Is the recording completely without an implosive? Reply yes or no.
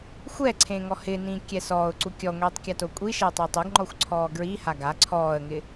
yes